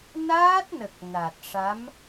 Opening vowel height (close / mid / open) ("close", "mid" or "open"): open